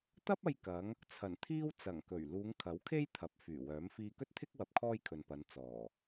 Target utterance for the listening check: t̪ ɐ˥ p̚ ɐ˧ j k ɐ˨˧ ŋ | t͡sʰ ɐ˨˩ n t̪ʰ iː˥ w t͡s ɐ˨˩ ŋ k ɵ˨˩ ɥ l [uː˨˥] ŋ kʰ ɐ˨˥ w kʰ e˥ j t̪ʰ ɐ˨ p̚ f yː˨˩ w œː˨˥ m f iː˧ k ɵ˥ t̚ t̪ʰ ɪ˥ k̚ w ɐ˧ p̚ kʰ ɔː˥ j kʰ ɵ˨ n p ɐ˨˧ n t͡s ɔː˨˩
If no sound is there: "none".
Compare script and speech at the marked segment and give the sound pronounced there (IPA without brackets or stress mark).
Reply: uː˨˧